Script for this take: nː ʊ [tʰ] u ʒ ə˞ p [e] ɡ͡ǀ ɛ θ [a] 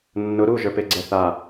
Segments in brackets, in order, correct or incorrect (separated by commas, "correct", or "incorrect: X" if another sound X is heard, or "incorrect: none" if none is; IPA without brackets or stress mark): incorrect: ɾ, correct, correct